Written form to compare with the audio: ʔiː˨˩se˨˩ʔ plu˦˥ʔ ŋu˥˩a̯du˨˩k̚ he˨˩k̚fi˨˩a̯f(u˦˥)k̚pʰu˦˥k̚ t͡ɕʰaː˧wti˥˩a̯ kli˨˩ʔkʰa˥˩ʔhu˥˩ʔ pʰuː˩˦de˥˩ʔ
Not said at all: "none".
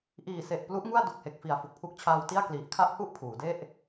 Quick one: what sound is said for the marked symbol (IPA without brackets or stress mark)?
u˨˩